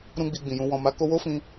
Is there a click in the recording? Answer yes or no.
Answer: no